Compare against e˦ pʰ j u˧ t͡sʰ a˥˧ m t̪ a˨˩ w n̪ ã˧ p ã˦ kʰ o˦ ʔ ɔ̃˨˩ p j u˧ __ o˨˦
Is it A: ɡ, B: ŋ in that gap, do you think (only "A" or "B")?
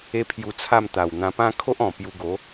A